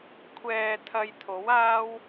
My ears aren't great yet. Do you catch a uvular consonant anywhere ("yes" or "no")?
no